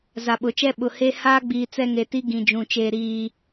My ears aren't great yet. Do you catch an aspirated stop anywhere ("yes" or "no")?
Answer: no